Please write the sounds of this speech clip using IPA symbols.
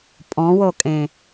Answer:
pʼɔ̃wokʼẽ

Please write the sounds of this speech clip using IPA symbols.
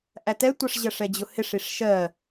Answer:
ʔætɛtʷʌʂ ʑɜʂɛd͡ʑʊhɪʂ iʂʃɜ

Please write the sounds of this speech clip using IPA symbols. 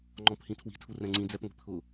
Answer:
ŋ͡ǃɔ̃phĩtʰwi̤ tʰurɛ̃ŋ͡ǀĩ d͡zɛpŋʷi̤pʰʊ

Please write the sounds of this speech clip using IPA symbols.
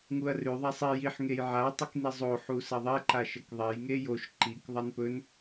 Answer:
ŋuɐ̯rʉ ðˤasˤi jiħ ŋejʕa tˤɨknizˤo ħusɐðˤe ǃaʃɐkðˤej ŋejoʃ ǃik ðˤanpɵn

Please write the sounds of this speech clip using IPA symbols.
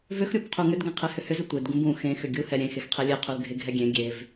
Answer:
vʏxɾʲub qʰuŋʏdɡɛ̃ qʰehʏhʏzʏ tʷedɡũb ũ xẽ xʏɡʲuhɛ ɾʲẽ xexqʰelʲe qʰulɡʱeɡʱɛɡʲẽ ɡʲev

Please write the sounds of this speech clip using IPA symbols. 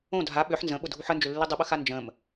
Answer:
õ dʱa ɓʏħ nzə̃ɓʊdʱuħ ənd͡ʒʏlːi dˤəɓəxa nd͡ʒə̃m

